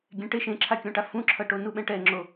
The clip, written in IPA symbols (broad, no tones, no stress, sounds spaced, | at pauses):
ɡʲ ɛ̃ ʈ e ʃ ẽ ǁʰ a kʲ õ ʈ a f ũ ǁʰ ʌ ʈ o n u ɓ ɛ̃ ʈ ɛ ŋ͡ǁ o